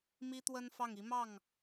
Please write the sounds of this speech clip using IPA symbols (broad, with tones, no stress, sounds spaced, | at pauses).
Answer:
m i˥ t̪ w ə˥ n f ɑ˥˩ ŋ i˧˥ m ɑ˥˩ ŋ